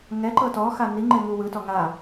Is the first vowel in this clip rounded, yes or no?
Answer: no